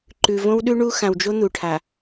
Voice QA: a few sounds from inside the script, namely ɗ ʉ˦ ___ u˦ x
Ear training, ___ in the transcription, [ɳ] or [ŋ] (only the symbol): ɳ